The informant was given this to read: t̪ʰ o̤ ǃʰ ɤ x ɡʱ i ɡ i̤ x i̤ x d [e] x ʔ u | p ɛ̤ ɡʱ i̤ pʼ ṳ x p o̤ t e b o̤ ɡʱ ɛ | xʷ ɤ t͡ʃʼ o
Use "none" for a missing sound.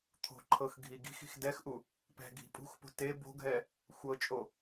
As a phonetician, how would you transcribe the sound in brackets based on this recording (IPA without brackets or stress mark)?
ɛ